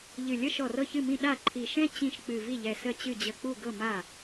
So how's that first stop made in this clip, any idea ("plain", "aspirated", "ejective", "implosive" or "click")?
implosive